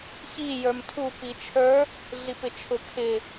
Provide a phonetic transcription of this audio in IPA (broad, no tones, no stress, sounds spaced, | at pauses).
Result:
ç i j ə˞ m tʰ u p i t͡ʃʰ ə˞ | ɮ i p ɪ t͡ʃʰ ʊ kʰ ɪ